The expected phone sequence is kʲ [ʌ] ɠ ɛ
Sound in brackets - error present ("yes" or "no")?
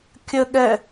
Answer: yes